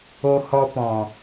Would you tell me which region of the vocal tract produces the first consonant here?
throat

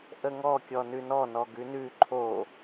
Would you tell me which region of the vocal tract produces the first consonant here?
throat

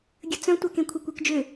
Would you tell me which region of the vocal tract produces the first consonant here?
velum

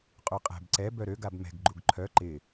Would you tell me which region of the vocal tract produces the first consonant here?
uvula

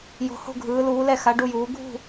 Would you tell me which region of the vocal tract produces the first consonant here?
palate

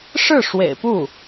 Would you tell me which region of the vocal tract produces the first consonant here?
retroflex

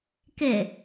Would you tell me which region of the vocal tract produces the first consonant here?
velum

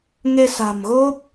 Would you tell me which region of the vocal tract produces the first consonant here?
velum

